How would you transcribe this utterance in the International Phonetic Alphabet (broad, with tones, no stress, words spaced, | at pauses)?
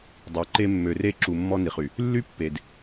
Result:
dˤø˨˦ǃe˦ mːø˨re˦˨ǁu˨ mːɔ˦ni˨χy˨ | lːy˦pːe˨d